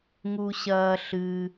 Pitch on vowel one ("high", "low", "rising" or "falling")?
high